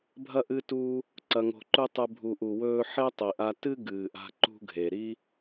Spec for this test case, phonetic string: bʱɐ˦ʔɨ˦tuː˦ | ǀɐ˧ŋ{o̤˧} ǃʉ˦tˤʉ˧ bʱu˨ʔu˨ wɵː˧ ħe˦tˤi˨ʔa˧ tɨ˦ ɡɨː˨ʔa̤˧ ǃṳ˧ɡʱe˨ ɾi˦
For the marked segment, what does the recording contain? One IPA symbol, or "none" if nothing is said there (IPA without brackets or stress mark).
o̤˧